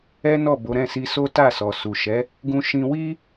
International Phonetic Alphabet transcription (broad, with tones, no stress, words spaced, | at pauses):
ɛ˦nɔ˦˨bo˨˦ ɾɛ̃˦˨si˧so˦ ta˦˨ sɔ˨ su˨ʃɛ˨˦ | ɡũ˧ ʃĩ˧ wi˦